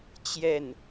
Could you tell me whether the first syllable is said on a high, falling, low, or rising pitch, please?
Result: falling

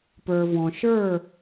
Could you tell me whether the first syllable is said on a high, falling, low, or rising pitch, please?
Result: low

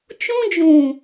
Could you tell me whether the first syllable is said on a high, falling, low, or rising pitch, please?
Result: high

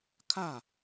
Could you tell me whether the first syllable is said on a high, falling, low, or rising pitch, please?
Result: falling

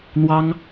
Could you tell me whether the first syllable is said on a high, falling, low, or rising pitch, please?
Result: high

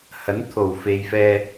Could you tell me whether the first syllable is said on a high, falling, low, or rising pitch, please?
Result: rising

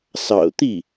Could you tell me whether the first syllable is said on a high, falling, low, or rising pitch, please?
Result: low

